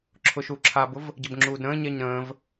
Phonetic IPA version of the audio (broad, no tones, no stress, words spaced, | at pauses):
ǁʰʊʃuǁʰabʊv | ɟəbŋ͡ǁuːdɾə̃ːɲɛɲ ɾə̃ːv